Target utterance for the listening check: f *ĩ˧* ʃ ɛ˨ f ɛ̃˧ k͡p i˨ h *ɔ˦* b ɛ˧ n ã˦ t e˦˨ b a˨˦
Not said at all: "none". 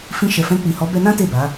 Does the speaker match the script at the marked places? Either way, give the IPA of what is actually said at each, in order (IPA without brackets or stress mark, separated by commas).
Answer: ĩ˧, ɔ˨˦